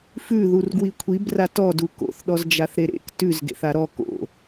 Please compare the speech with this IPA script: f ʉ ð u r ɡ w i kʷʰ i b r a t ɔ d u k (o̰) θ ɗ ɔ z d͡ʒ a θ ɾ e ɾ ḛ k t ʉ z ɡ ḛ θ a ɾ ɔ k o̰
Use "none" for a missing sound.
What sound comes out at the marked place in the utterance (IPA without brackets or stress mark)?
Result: o̰